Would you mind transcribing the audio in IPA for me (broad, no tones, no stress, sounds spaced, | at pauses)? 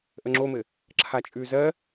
ʔ ə ŋ͡ǁ o m ɘ | ǁʰ a t͡ʃʼ ʉ z ɜ